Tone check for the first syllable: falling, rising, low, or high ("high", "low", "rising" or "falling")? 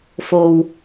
low